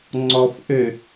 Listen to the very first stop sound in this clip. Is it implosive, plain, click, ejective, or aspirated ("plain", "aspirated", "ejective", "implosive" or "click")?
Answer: click